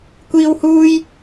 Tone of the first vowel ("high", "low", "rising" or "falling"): high